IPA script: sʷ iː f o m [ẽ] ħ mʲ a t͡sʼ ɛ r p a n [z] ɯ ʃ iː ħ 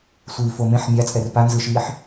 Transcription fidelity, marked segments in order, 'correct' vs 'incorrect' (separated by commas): correct, correct